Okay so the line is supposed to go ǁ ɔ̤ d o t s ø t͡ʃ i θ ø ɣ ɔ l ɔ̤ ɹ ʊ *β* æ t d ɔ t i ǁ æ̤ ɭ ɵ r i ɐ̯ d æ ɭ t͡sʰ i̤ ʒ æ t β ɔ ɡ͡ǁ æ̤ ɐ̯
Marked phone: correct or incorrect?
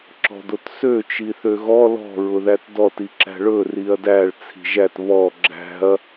incorrect